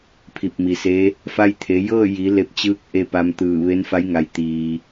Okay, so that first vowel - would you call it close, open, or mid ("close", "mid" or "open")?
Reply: close